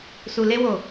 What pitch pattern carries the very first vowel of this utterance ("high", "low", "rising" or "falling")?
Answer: low